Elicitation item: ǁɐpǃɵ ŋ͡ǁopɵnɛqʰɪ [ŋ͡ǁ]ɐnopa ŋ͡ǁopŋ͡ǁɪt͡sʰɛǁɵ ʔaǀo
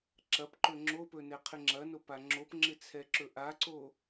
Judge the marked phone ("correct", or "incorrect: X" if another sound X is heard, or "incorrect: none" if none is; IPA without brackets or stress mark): correct